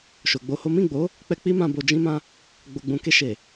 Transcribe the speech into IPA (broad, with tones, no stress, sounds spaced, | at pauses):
ʃ o˨ ɡ͡b o˧ h o˦ m ĩ˦˨ ɡ͡b o˨˦ | k͡p ɛ˧ k͡p i˦ m ã˧ b o˨ d͡ʒ ĩ˧ m ã˧ | ɡ͡b o˨ ɡ͡b ũ˨ k e˧ ʃ e˨